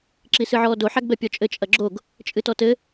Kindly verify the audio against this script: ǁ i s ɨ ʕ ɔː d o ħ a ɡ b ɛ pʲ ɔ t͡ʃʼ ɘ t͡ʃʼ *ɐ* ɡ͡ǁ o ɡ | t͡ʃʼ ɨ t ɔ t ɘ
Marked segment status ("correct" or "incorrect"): correct